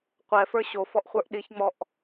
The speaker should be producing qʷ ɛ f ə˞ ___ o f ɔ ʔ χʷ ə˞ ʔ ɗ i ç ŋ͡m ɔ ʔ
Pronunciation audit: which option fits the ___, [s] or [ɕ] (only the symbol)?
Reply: ɕ